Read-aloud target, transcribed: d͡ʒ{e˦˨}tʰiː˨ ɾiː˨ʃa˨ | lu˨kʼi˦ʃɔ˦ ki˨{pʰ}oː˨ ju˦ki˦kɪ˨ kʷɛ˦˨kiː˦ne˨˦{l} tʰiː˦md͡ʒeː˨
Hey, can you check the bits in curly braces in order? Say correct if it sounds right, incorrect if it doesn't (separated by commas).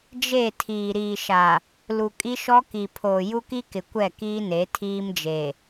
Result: correct, correct, incorrect